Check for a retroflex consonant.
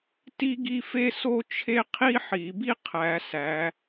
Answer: absent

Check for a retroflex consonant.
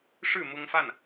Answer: present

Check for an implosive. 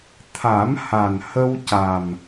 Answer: absent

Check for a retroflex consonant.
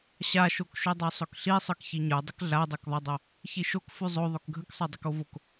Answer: absent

